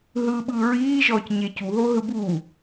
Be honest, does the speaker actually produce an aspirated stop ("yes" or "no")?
no